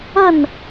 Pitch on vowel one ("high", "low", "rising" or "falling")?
falling